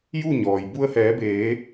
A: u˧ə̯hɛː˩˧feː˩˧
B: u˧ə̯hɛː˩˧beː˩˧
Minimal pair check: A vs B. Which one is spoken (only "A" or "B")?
B